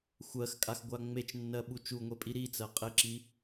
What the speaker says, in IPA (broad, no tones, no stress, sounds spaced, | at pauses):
xʷ ɜ x kʼ a x ɡʷ a ŋ͡m e t͡ʃ nː ɜ ɓ u t͡ʃ u ŋʷ e pʼ i ɾ i t͡s ɜ qʼ e ǁ i